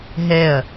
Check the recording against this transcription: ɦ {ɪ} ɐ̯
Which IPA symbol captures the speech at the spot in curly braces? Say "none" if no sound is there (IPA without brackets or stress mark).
ɛ